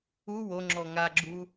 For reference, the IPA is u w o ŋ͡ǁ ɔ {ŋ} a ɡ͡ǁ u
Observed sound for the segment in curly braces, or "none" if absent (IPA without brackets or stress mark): ŋ